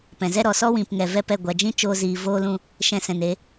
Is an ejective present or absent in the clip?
absent